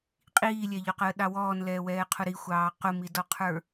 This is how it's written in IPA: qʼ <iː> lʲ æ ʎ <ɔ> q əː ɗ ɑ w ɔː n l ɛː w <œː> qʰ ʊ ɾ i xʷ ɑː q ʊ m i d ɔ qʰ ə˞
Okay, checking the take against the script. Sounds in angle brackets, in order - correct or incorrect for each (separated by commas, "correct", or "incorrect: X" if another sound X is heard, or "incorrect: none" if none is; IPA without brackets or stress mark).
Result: correct, correct, incorrect: ɛː